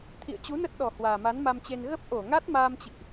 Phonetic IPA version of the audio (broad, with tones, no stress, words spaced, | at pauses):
t̪ʰḭ˧˨ə̯t͡ɕu˨˦nə˦˥t̚ ɗɔ˨˩ hwaː˨˩ma˨˦nma˧mt͡ɕe˧n ɣə˦˥p̚ ʔo˧˩ŋa˦˥t̚ maː˧mt͡ɕḭ˧˨ʔ